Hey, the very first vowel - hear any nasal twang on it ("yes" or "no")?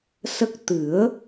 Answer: no